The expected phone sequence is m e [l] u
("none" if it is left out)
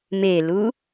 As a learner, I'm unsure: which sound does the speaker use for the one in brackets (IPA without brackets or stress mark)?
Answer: l